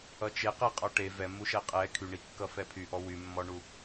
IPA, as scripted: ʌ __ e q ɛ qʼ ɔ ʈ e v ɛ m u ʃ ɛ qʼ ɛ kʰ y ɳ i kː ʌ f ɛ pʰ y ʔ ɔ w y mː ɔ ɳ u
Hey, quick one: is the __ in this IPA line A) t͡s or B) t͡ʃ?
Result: B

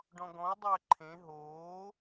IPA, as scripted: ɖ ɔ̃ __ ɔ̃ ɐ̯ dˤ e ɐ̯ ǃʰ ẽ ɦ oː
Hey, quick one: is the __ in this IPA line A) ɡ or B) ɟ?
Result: A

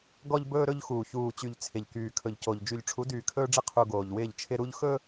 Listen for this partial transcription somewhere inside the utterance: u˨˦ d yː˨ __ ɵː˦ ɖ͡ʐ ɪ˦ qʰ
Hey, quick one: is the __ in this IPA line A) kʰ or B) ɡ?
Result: A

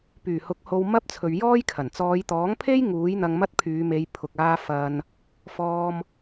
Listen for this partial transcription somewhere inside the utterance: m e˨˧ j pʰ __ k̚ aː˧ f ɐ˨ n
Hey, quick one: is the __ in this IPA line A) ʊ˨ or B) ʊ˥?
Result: A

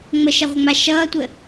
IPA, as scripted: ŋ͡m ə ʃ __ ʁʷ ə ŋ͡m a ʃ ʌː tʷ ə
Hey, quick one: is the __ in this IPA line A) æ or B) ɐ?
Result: B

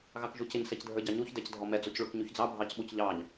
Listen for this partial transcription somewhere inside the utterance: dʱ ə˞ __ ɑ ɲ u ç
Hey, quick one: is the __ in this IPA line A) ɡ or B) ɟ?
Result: B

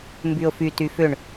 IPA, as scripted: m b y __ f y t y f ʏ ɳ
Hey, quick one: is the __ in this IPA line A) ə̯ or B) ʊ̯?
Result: B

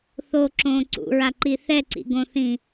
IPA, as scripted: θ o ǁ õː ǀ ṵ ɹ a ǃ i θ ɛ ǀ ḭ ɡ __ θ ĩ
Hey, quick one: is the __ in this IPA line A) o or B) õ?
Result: B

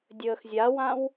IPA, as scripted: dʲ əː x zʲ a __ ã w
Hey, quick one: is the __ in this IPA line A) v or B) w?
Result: B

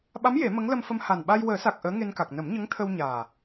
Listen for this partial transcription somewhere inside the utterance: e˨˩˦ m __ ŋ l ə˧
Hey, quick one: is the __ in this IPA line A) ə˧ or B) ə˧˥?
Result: B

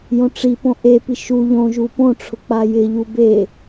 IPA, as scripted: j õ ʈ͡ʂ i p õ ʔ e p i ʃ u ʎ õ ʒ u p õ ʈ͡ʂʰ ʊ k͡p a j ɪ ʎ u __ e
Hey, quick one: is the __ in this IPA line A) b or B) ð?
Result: A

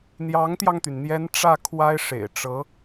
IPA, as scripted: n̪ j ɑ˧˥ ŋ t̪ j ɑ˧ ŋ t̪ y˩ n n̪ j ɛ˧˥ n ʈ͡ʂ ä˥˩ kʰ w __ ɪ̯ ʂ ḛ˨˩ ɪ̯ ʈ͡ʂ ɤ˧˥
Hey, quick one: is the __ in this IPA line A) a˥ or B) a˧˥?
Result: A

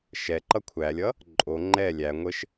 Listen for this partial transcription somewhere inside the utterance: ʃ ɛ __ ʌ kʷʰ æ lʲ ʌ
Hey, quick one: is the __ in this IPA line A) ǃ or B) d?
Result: A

